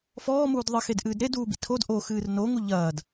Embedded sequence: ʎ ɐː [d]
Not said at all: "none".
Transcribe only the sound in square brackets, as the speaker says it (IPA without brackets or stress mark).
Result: d